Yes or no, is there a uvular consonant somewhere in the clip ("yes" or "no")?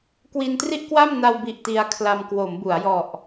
no